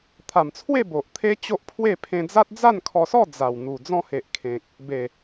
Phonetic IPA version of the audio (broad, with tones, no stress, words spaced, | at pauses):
t̪ʰa˨˩mt͡sʰwe˥˧ bo˨ʔt̪ʰe˦t͡ɕo˦ʔpʰwe˥˧ pʰẽ˧d͡za˦t̚ d͡za˥˧nkʰɔ˧sɔ˥˧ d͡za˨˩wn̪u˨˩ d͡zɔ̃˧he˨ʔ kʰẽ˨k̚ | be˨˩